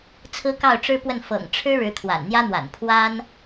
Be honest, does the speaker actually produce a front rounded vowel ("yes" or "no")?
no